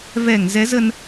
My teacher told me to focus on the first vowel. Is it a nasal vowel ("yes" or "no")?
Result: no